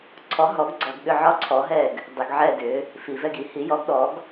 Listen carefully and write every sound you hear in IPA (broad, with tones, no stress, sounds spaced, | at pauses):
ǀʰ ɔ˨˥ ɦ ɔ˨˥ ɡ ɡ͡ǀ ɔ˧˩˧ ɡ ɠ ʏ˦˨ ʕ ɒ˦˨ ǀʰ ɔ˨˥ ɦ ɛ˦˨ ɡ | dˤ ʏ˧˩˧ ɡ ʕ ɛ˦˨ d ʏ˨˥ | f i˧˩˧ v ɛ˦˨ ɡ i˧˩˧ h i˨˥ j ɔ˨˥ ɡ ɗ ɔ˨˥ ɡ